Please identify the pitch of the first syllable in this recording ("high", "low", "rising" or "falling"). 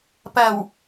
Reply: low